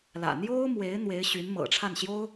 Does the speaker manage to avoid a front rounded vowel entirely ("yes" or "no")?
no